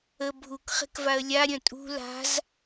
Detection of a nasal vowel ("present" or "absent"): present